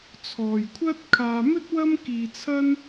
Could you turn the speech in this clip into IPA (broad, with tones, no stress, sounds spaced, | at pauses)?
t͡sʰ ɔː˨ j kʷʰ ɐ˥ t̚ kʰ aː˧ m ɵ˥ t̚ w ɐ˥ m k iː˧ t͡sʰ ɐ˥ n